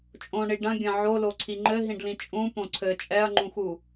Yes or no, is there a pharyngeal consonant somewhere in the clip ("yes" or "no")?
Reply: yes